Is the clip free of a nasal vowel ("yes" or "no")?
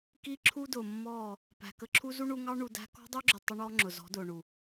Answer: yes